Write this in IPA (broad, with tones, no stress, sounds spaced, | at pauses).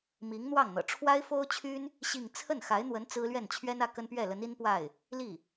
m i˧˥ ŋ n̪ w ɑ˥˩ ŋ n̪ ɤ̰˨˩ ʈ͡ʂʰ w a˥ ɪ̯ f o˥ ʊ̯ t͡ɕʰ y˥ n | ɕ i˥˧ ŋ t͡sʰ ə˥˩ n x a˧˥ ɪ̯ n̪ w ə˧˥ n t͡s ɹ̩˥ l ɥ ɛ˥˩ n t͡ɕʰ ɥ ɛ˥ n ä˥˩ k ə˥ n p ɥ ɛ˥˩ l ə˧˥ n i˥ n p w a˥˩ ɪ̯ | l i˥˩